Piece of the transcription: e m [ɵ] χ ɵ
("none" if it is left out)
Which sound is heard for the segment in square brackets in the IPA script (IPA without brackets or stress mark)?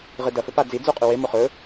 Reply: o